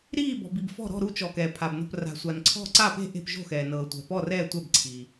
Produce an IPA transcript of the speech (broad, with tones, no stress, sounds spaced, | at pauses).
ɾ iː˧˩ b ɔ̤˩ b i˩ b f ɔ̤˧˩ ɾ ɔ̤˧˩ ɾ u˧˩ t͡ʃ ɔ˩ k ɛː˩ pʰ a˩ b n o̤˧˩ p r a̤˩ sʷ a˩ n ǀʰ ɔ̤˧˩ ǀ a˧˩ p e̤˧˩ ʔ e̤˧˩ p ʒ o̤˧˩ x ɛː˩ n ɤː˩ tʷ ɛ̤˩ p ɔ˧˩ r ɛː˧˩ tʷ ɛ˧˩ b ǀʰ iː˩